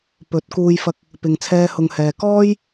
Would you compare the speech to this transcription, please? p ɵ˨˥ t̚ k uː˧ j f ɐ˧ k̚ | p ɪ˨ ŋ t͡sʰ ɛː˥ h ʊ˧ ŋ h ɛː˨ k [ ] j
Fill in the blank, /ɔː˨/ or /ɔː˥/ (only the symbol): ɔː˥